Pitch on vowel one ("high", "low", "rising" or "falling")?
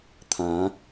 rising